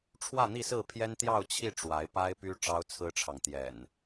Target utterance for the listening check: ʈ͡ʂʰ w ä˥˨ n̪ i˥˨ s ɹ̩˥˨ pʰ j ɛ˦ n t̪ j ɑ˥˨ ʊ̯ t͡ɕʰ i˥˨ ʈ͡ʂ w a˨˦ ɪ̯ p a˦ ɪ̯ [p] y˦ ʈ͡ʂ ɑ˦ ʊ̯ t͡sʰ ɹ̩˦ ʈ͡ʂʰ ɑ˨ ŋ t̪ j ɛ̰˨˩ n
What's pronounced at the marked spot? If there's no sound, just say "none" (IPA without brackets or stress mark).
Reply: p